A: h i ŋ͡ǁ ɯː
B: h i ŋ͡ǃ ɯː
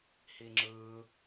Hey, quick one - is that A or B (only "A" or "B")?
A